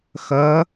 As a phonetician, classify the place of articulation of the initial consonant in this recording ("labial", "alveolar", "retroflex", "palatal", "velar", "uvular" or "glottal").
velar